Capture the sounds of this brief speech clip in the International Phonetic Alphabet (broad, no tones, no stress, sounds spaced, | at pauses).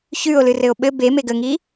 ç ʉ o̯ l ɨ r ɘ o̯ ɓ ɘ b e m e ɡ ə ŋ i